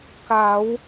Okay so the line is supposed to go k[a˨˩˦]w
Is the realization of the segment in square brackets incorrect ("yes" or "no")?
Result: no